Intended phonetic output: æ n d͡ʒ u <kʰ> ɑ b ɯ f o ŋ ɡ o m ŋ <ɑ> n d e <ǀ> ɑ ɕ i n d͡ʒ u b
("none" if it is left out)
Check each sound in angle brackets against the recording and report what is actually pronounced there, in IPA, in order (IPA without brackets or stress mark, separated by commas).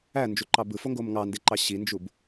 ǃ, ɑ, ǃ